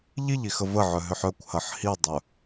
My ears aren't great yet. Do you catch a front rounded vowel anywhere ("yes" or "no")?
yes